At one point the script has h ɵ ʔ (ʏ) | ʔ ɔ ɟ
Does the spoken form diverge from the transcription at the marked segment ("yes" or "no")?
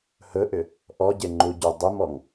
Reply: no